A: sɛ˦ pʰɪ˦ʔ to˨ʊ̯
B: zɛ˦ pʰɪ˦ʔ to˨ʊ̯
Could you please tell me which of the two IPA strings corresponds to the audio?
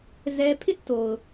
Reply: B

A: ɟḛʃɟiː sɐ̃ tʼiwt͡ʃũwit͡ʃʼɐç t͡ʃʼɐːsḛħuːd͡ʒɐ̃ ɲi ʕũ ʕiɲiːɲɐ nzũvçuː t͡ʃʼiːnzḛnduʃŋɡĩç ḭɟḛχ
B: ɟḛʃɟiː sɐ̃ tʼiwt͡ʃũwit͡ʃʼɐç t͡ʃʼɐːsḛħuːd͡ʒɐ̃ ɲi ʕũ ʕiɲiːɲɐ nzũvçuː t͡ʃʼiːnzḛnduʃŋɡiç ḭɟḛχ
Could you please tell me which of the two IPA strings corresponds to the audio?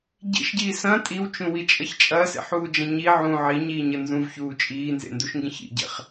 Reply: A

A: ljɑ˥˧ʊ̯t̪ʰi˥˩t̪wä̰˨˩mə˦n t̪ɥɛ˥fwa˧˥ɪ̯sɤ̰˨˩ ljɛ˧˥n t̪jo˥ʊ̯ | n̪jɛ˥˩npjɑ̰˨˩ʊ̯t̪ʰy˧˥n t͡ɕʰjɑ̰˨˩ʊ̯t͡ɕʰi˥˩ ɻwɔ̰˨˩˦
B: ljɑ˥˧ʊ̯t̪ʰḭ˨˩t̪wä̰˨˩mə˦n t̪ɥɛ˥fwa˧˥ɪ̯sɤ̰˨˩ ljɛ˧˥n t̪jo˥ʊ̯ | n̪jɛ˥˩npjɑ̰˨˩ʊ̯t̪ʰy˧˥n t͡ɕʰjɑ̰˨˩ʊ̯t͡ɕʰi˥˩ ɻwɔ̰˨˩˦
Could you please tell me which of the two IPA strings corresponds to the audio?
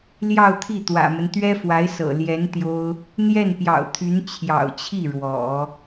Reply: A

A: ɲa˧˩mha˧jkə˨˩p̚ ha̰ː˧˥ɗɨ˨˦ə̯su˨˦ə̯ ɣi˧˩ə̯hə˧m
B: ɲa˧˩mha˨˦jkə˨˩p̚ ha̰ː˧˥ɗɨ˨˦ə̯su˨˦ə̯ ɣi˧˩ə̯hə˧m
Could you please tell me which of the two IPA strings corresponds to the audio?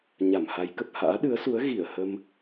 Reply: B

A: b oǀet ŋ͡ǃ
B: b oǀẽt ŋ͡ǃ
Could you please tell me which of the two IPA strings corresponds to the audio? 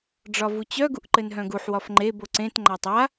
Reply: B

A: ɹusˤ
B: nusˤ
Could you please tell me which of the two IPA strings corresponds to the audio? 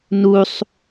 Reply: B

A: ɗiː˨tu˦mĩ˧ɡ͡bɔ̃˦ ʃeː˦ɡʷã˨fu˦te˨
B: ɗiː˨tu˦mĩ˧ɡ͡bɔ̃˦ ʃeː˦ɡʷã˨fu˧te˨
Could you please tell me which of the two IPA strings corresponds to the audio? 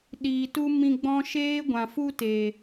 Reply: A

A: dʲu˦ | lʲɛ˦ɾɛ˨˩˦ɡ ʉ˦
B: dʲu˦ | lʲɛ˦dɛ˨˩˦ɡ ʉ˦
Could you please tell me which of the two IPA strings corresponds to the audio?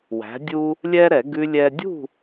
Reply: A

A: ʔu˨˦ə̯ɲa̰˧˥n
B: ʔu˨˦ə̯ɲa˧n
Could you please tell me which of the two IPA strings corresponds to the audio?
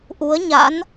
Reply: A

